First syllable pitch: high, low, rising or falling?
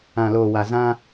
low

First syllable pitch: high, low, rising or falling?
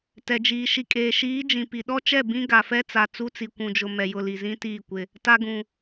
low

